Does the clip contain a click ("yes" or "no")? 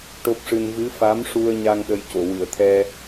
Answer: no